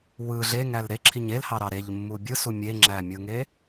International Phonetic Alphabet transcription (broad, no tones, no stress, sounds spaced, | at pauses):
w ɯ ɮ e ŋ æ l ɾ e ǁʰ i ɲ e l h ɑ ɾ ɑ ɾ e ʎ mː u bʲ ɯ s u mʲ e ŋ͡ǁ æ mʲ ɯ ŋ e